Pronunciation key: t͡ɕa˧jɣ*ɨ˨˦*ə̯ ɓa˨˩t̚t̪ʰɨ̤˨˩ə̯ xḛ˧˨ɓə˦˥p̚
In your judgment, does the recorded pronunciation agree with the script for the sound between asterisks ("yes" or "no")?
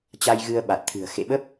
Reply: no